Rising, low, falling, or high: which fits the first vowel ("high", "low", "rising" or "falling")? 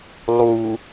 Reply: low